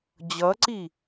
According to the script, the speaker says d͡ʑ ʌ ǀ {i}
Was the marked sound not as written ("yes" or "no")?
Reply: no